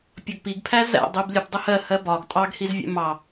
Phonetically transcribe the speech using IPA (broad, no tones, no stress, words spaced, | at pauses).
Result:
pʲɒɡpiɡpʰæ zæ̰dˤib lʲəb dˤəhɜ hɜbɒɡ tʼɑɡhizvʲæ̰ mɑ